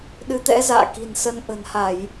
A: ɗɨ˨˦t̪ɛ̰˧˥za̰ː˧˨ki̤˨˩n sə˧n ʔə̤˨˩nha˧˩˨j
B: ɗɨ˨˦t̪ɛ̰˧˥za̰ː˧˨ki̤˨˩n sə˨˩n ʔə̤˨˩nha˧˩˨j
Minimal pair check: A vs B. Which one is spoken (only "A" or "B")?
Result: A